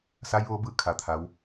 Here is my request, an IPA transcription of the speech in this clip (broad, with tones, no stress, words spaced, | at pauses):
sa˧˥jʋoː˧˥ bɯː˥˨ kʰa˩t̪ʰa˩˧w